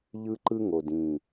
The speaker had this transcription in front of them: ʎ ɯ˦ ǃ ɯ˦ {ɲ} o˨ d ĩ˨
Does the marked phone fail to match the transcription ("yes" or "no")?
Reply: yes